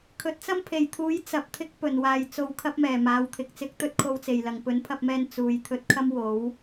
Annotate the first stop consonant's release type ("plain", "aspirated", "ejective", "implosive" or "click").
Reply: aspirated